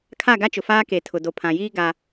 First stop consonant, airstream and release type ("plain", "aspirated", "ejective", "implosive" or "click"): aspirated